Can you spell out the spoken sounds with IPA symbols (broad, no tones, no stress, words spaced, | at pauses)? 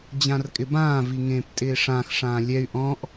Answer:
d͡ʑãrkʼɪbãː viŋẽːptʼɪːʂãx ʂãːlʲɛy̯ ʔɔ̃ʔ